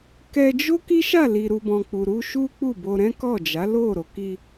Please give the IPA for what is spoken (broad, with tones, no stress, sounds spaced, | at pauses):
k ɛ˧ d͡ʒ o˦ k i˦ ʃ a˦˨ l i˨ ɾ u˨ b ɔ̃˨ k͡p u˨ ɾ u˧ ʃ u˦ k͡p u˦˨ b o˧ ɾ ɛ̃˦ k ɔ˦˨ d͡ʒ a˨˦ l o˦˨ ɾ o˨ k i˧